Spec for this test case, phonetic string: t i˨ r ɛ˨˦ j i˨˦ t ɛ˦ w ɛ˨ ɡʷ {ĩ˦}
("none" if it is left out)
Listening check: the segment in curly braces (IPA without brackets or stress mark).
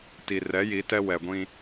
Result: ĩ˦